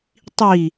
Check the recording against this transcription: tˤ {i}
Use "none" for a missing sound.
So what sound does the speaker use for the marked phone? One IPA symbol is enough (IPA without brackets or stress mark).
i